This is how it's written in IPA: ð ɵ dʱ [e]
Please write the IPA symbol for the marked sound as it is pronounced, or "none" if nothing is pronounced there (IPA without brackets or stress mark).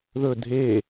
e